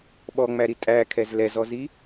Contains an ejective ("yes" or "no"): yes